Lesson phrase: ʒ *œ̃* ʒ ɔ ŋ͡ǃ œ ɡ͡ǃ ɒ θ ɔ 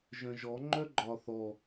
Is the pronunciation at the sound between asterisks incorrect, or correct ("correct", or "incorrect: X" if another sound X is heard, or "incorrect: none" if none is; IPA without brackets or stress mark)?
correct